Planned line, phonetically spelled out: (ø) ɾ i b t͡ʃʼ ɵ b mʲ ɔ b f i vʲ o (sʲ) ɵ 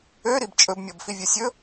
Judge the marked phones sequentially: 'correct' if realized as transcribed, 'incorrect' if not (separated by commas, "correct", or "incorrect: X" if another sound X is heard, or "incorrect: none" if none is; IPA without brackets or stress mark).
correct, correct